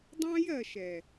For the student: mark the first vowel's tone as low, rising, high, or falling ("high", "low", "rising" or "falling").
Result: high